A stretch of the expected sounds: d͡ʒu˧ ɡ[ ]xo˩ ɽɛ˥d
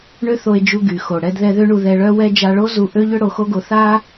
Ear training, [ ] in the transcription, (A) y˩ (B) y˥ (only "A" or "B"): A